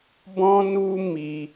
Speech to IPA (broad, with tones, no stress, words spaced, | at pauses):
bɔ̃˦nu˦ mi˦